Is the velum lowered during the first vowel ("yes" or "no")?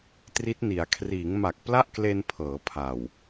no